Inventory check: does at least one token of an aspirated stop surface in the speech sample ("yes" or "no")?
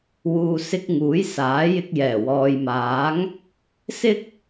no